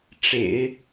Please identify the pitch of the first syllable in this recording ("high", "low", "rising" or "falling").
low